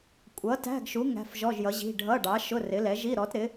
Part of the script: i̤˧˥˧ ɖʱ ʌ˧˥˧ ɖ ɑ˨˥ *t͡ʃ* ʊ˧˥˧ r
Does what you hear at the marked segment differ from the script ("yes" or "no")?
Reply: yes